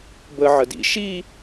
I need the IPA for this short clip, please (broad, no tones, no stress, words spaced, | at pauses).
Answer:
bə ʕədḭ ʃi